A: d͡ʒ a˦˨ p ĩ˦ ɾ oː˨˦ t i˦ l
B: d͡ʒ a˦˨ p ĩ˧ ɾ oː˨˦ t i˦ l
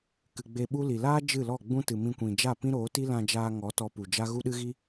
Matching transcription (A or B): A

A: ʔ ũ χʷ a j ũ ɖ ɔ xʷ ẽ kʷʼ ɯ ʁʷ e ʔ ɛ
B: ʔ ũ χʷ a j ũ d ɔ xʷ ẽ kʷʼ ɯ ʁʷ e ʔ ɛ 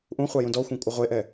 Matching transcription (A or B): B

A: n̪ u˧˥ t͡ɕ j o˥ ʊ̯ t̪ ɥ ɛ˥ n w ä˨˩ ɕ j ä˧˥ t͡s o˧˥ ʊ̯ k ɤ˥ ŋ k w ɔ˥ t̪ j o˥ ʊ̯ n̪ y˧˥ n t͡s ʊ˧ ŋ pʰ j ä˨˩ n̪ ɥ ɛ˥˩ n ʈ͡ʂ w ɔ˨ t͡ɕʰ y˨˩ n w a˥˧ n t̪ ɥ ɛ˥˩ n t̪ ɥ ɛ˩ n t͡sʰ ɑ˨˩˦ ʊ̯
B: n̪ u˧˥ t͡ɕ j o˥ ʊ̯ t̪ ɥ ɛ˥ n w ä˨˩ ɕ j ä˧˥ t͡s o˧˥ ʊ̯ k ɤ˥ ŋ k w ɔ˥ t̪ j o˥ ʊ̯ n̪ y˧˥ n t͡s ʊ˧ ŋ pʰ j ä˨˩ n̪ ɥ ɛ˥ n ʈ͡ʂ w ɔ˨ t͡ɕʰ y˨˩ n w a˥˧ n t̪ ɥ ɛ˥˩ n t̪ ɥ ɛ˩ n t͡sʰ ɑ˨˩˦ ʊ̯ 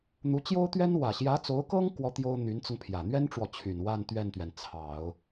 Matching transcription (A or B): B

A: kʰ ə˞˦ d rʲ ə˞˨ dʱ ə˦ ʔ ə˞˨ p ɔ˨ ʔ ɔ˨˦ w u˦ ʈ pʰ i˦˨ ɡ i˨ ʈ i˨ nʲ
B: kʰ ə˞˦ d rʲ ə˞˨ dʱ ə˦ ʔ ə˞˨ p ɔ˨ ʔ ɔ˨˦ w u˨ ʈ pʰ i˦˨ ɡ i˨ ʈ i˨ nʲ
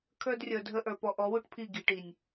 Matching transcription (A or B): A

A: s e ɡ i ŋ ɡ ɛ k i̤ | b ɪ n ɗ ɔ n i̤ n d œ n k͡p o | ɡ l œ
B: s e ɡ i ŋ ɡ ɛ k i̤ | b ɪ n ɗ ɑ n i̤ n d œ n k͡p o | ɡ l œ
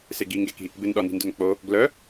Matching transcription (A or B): A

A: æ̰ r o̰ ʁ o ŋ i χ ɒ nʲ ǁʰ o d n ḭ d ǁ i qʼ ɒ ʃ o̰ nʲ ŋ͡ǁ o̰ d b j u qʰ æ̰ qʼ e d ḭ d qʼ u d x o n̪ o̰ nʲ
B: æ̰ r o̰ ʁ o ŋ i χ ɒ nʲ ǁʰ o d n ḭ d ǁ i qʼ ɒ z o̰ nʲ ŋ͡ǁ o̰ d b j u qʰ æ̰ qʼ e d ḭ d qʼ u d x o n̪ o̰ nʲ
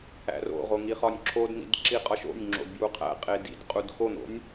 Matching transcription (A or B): A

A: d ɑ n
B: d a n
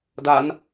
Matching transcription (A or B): B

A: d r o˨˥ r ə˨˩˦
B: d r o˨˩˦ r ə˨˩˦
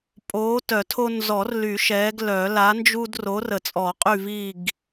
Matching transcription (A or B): A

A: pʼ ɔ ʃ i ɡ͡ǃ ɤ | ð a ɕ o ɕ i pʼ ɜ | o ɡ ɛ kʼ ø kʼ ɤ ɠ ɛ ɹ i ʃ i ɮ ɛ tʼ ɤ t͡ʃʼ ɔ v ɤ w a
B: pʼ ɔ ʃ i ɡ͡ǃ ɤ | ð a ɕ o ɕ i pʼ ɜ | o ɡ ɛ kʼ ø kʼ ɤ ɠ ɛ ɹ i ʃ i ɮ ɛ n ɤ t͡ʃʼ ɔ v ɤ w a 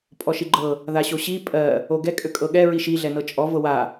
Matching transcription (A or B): B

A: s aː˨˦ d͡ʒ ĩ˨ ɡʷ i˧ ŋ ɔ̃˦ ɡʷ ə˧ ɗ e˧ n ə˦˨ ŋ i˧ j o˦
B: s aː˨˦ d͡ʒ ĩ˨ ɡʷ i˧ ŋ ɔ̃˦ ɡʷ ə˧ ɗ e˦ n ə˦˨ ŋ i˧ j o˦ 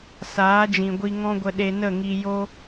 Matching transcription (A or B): A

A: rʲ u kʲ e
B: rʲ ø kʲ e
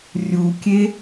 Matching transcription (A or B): A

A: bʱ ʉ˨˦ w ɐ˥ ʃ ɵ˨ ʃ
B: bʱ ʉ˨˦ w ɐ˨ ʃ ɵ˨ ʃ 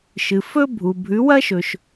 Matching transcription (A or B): A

